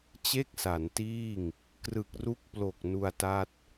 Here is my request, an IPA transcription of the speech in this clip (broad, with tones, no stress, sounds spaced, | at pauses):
t͡ɕ e˥˩ k̚ s a˩˦ n t iː˥˩ ŋ | k r ɯ˨˩ k̚ r u˦˥ k̚ p l o˨˩ k̚ n u˧ a̯ t a˥˩ t̚